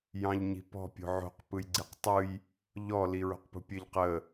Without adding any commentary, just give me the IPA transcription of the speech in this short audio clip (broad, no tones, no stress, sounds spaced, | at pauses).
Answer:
j ɑ̃ ʎ ɲ i̤ p ɔ̤ pʲ o̤ ʕ o̤ q p ɯ j ɡ͡ǀ i q tˤ ɯ j | ʎ ɔ l i ɹ o̤ q p ṳ pʲ ɘ ʎ q ə